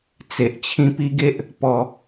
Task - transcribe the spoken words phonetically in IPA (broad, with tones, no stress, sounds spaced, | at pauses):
t͡s e˨ ʔ t͡ɕʰ ĩ˧ p i˦ ɡ e˦ ʔ | p ɔ˧